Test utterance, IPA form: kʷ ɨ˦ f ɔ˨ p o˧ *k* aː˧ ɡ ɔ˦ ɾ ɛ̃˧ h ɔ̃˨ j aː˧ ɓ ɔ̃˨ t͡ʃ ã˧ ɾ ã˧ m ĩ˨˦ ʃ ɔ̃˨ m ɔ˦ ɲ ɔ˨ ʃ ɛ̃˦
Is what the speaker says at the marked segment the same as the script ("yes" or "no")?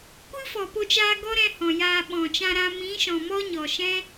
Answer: no